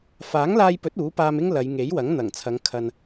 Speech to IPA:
f aː˨˥ ŋ l aː˧ j p ɵ˨˥ t̚ uː˨˥ p aː˧ m ɪ˥ ŋ l ɐ˨˧ j ŋ e˨˥ j w ɐ˨˥ ŋ n̪ ɐ˨˩ ŋ t͡sʰ ɐ˨˧ ŋ kʰ ɐ˨ n

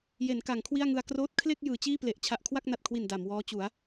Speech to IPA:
j e˩˦ n k a˩˦ ŋ kʰ w i˥˩ a̯ ŋ ɯ˧ a̯ k r oː˦˥ t̚ kʰ l e˥˩ k̚ j ɯː˩˦ t͡ɕ iː˥˩ p l e˨˩ ʔ t͡ɕʰ a˨˩ ʔ kʰ w a˥˩ k̚ n a˨˩ t̚ kʰ w i˨˩ n d a˩˦ m w ɔː˦˥ t͡ɕ u˩˦ a̯

